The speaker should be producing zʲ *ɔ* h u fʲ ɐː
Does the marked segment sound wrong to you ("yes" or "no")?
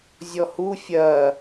no